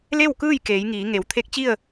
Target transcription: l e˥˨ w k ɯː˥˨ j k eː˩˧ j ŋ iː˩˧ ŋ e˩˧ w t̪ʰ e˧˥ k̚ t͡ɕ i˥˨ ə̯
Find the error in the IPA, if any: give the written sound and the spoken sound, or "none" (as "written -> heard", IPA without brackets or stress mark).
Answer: none